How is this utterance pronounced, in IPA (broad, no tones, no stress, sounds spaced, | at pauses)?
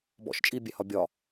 b ɔ̰ ʃ t͡ʃʼ i bʲ ɛ h ɒ bʲ ɒ